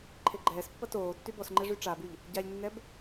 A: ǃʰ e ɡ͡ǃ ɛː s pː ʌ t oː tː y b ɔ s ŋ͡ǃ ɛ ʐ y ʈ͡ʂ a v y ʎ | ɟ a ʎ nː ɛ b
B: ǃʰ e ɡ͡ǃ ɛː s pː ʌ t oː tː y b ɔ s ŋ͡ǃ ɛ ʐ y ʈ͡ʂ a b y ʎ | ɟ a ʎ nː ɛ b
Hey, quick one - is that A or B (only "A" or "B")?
B